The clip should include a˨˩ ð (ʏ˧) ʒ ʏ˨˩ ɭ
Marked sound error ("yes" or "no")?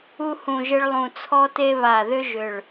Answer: no